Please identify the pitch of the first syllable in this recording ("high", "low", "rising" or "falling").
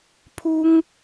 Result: high